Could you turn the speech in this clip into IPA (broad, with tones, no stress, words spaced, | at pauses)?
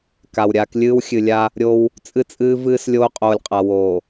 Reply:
ka˨wɾʲaː˦k lʲɨː˦w xʲɨ˨lʲa˦ | ɾʲo˦w | t͡sʼɨ˦t͡sʼɨː˦ vɨː˦s lʲoː˦qʼoː˨lʲqʼa˨ woː˨